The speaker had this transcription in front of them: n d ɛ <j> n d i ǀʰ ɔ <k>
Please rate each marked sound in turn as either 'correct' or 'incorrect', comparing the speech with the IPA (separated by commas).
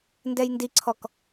correct, correct